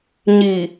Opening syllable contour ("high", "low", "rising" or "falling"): low